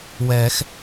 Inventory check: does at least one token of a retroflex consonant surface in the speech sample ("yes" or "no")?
no